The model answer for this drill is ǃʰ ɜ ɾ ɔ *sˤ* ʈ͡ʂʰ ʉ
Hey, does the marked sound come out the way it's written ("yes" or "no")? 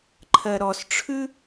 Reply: no